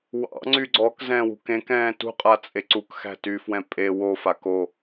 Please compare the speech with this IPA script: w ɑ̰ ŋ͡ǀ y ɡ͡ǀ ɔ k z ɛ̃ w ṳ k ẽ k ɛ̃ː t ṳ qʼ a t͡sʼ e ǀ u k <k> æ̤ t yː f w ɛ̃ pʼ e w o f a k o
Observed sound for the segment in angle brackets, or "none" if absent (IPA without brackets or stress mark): x